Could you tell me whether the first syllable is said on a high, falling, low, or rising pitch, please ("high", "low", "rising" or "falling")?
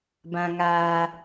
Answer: low